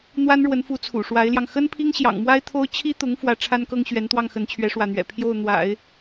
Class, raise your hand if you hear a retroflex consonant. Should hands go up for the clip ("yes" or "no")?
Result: yes